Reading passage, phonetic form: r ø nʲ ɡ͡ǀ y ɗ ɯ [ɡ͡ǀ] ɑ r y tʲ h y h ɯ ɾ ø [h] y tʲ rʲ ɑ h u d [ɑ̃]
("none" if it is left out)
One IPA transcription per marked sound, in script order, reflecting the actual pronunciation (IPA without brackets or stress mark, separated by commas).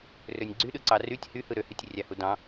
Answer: ǀ, h, ɑ̃